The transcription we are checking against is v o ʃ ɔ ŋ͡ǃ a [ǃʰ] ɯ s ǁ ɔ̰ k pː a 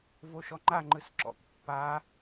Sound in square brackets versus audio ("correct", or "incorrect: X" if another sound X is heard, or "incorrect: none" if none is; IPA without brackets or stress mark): incorrect: ŋ͡ǃ